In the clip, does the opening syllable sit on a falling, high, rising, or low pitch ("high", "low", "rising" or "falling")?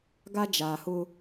high